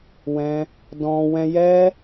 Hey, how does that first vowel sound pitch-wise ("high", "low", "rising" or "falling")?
high